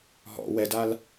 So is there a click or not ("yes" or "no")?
no